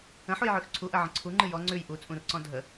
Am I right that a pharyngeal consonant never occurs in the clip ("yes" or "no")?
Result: no